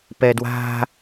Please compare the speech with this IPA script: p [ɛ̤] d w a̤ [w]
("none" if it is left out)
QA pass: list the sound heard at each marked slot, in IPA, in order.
ɛ, none

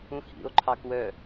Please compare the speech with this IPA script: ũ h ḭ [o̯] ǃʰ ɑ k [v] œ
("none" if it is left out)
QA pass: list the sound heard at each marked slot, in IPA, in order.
o̯, w

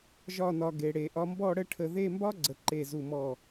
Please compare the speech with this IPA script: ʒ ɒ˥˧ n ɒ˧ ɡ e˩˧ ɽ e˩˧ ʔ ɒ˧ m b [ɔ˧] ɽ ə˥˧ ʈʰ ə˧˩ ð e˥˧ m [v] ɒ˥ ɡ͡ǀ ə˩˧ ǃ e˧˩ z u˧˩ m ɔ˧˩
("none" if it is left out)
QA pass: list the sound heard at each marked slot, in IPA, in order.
ɔ˥˧, b

